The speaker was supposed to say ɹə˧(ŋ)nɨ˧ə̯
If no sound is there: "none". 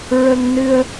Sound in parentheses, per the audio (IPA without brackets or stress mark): ŋ